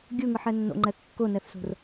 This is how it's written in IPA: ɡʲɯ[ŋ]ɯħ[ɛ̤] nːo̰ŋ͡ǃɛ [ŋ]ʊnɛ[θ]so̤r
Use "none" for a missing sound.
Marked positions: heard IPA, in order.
ŋ, ɛ, kː, θ

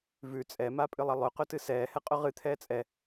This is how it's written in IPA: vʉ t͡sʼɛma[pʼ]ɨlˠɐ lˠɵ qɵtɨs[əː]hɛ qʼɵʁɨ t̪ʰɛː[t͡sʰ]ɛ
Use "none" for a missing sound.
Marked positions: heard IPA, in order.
pʼ, ɛː, t͡sʼ

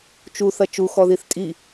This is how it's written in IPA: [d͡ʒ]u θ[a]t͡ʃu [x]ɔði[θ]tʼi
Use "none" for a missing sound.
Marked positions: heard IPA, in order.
t͡ʃ, ɐ, x, θ

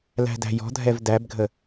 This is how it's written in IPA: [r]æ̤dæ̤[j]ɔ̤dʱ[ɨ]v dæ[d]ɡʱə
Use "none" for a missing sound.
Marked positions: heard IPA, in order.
l, j, ɛ, b

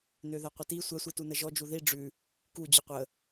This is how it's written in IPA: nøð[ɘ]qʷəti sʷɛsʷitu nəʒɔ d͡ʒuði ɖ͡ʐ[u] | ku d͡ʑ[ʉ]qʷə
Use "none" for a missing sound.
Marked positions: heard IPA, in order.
ɛ, ʉ, ʉ

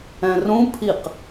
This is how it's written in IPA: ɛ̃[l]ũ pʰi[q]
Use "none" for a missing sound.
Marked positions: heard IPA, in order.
r, q

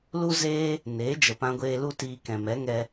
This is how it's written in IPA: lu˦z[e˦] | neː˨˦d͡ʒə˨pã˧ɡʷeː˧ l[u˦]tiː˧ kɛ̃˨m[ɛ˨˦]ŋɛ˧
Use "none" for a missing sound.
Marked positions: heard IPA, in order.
eː˦, u˦, ɛ˨˦

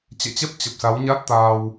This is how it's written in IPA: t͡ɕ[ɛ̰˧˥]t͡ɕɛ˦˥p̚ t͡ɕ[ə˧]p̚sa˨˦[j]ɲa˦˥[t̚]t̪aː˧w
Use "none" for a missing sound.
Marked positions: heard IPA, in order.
ɛ̰˧˨, ə˨˩, w, t̚

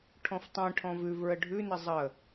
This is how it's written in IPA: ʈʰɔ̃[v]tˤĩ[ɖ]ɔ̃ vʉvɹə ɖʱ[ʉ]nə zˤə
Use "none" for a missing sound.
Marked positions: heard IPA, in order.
f, ʈʰ, ʉ

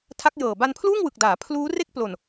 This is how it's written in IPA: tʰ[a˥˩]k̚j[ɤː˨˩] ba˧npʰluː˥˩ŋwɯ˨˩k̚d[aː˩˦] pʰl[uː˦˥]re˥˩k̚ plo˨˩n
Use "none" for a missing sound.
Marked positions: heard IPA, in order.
a˦˥, ɤː˨˩, aː˩˦, uː˦˥

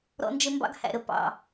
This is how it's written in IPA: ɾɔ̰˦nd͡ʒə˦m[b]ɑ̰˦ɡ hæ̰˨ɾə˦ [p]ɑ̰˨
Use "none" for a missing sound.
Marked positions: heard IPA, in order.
b, p

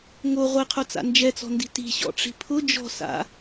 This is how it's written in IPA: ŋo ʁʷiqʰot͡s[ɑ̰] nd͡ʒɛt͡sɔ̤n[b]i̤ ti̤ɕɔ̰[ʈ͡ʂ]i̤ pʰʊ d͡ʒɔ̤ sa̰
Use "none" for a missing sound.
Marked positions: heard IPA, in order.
a̰, d, ʈ͡ʂ

